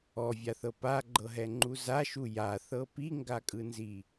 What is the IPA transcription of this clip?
ɔvʲaθɤ paɡ͡ǃɤɦɛŋ͡ǃu zaʃu jaθɤ piŋɡakʼɯnzi

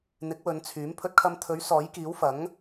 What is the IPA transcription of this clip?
n̪ɪ˨˥k̚wɵ˨˧nt͡sʰyː˨˥m pʰɵ˧t̚kʰɐ˧mt̪ʰɵ˨˥ɥ sɔː˨˥jkiː˨˥wfɐ˨˥ŋ

